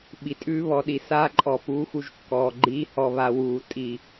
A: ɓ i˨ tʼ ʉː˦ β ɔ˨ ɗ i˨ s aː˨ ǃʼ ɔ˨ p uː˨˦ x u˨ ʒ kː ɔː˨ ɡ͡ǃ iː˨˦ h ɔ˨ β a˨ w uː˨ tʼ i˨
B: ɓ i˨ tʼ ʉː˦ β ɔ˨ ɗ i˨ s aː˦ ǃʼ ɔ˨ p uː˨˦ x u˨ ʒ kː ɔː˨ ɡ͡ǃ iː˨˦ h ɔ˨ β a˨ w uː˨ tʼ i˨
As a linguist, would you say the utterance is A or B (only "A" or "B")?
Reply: B